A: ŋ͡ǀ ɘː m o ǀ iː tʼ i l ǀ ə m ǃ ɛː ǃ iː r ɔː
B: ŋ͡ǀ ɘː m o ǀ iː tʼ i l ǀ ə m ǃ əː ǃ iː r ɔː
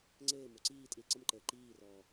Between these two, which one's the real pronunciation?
B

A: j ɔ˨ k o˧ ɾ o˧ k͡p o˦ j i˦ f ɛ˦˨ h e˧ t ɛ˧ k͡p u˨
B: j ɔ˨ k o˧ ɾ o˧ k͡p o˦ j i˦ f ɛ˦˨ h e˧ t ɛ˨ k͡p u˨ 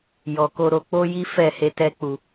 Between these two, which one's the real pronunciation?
A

